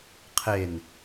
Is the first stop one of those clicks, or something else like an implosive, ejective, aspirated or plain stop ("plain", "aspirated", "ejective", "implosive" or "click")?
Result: aspirated